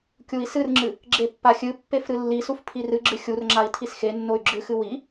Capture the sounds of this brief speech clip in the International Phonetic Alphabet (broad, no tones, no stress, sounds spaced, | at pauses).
kʲ u i̯ s ɨ r ŋ͡ǁ ɨ | ɡ͡ǁ e pː a xʲ ɨ pː e f ɾ ɨ lː i s u f pʰ i r ɨ ɡ͡ǁ ɨ xʲ u r ŋ͡ǁ a i̯ tʰ i s x e nː o y̯ ɡ͡ǁ ɨ x ɨ w i